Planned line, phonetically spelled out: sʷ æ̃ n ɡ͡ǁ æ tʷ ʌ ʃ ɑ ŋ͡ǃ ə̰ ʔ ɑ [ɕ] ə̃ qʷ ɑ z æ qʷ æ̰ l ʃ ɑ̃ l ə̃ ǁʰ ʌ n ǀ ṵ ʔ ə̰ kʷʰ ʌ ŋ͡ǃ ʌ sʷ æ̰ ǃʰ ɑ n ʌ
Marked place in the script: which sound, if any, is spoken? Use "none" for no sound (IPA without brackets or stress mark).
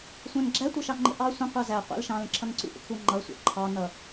sʷ